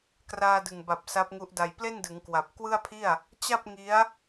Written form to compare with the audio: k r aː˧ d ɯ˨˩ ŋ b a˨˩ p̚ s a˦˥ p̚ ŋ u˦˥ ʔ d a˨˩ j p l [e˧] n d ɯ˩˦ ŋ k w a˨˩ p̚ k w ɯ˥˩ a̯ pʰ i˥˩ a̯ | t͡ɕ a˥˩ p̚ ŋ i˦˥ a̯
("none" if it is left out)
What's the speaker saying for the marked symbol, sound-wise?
e˥˩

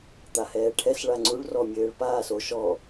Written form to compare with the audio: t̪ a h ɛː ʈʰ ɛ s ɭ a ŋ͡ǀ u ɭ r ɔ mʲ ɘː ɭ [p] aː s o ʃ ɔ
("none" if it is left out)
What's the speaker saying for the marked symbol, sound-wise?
p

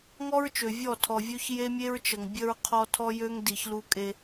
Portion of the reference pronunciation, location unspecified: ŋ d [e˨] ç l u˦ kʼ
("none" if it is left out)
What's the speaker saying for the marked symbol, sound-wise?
i˨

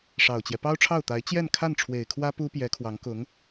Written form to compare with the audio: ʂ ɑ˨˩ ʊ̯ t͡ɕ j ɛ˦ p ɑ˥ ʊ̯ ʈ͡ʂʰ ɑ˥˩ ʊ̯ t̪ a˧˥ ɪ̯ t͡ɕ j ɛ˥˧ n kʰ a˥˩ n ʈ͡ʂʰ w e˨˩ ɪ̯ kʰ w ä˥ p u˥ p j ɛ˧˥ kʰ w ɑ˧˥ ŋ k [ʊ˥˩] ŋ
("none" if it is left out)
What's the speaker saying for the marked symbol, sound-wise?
ʊ˧˥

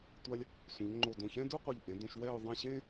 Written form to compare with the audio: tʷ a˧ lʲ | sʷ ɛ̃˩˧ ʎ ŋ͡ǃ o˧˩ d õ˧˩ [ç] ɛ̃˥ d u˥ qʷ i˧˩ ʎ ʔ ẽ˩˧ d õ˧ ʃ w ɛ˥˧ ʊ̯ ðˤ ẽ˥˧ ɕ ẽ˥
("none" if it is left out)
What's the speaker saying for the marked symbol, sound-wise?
ç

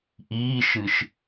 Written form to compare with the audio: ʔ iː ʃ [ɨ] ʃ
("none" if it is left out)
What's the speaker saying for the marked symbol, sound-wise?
ɨ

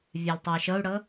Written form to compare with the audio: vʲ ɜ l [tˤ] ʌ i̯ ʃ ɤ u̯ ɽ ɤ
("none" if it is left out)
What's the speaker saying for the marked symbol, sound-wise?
tˤ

